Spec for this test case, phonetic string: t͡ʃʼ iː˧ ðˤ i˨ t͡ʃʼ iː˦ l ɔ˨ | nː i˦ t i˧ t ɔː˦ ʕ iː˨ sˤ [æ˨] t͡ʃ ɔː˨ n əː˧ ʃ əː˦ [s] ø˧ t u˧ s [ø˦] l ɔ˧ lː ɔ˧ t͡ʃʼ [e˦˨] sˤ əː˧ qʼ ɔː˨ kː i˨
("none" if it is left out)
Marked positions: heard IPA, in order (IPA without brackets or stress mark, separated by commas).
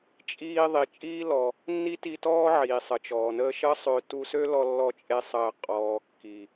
ə˨, sˤ, ø˦, e˦